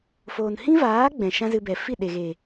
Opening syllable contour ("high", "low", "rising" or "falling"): low